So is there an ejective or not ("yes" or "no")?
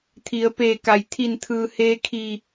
no